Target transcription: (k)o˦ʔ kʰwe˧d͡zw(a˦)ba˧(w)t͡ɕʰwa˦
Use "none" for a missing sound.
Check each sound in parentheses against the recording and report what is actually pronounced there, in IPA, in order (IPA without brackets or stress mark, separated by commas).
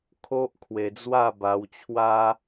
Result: kʰ, a˥˧, w